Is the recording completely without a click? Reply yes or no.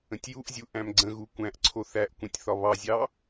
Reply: no